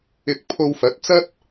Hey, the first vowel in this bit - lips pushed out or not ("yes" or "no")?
no